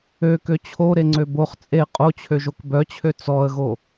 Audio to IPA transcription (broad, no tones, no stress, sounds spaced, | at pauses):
ø k ø t͡ɕʰ o ɾ e ŋ͡ǀ ø b o χ t͡sʼ e qʼ o t͡ɕʰ ø ʒ o k b œ t͡ɕʰ ø t͡s ɔ ə̯ ɣ o